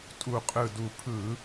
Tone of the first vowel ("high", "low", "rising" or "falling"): low